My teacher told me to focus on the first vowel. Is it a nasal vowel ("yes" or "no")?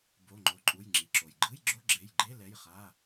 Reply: no